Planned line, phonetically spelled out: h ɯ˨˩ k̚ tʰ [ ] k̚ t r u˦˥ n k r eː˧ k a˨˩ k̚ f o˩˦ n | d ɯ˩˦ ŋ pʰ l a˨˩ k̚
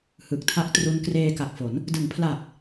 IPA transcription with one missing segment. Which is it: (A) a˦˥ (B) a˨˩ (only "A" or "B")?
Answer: A